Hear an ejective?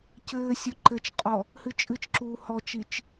yes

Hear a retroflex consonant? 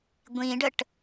yes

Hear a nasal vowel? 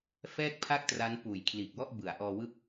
no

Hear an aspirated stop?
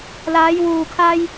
yes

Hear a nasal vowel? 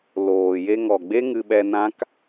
yes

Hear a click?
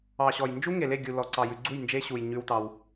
yes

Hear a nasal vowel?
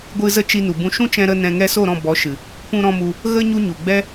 yes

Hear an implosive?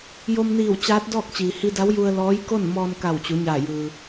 no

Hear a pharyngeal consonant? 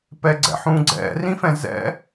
yes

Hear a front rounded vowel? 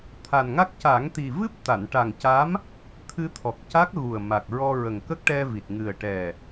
no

